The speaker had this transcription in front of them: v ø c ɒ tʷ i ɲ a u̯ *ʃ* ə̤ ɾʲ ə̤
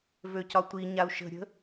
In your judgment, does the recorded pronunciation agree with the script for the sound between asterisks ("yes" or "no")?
yes